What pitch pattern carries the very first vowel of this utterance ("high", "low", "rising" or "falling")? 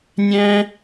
high